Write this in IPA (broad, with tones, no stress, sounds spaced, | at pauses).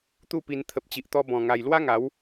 t̪ u˥˧ p i˧ n t̪ʰ ə˨ p̚ t͡ɕ i˨ ʔ t̪ ɔ˧ b ɔ̃˨˩ ŋ a˨˩ j l w a˦ ŋ a˨˦ w